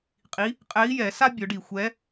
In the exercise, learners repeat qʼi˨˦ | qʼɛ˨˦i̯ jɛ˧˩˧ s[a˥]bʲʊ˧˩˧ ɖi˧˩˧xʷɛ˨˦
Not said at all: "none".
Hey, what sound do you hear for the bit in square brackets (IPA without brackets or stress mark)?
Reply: a˥